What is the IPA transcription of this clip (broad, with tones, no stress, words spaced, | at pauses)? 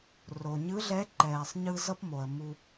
ro˩ ɲɯ˧˥ɮɛ˧˥ ǃɛː˩sˤɲɯ˧ zʌ˥pmo˩ə̯ mu˧